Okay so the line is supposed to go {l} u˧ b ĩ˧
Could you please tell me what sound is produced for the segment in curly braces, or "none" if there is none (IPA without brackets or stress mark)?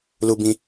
l